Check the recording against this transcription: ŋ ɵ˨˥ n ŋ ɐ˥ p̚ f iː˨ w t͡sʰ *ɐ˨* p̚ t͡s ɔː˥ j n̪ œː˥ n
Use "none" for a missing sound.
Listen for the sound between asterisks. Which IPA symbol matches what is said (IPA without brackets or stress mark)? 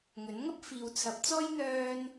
ɐ˨˥